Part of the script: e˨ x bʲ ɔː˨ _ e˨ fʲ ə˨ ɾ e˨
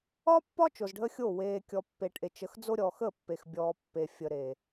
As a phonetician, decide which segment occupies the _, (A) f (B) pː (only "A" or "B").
B